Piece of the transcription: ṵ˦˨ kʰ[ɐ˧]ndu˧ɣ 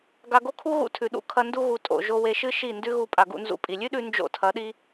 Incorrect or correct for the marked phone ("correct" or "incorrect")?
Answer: correct